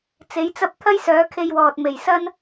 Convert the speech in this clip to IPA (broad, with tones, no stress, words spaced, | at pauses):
t͡se˨˥jt͡sɐ˥p̚ t̪ʰɐ˥jsœː˨˥kʰe˧jwɔː˨t̚ me˨˩jsɐ˥n